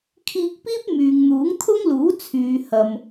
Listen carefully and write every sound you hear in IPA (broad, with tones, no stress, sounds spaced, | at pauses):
kʰ iː˧ k̚ p iː˥ p̚ m yː˨ ŋ n̪ uː˨˥ ŋ t̪ʰ ʊ˥ ŋ l uː˨˥ t͡sʰ yː˨ h ɐ˨ m